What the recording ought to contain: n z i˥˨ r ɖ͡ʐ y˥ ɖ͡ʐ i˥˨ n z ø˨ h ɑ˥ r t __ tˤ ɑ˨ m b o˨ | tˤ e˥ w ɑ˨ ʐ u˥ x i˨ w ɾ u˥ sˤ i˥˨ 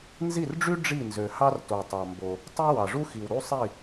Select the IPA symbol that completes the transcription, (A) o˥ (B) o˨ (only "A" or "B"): B